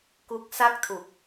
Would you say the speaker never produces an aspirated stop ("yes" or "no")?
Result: no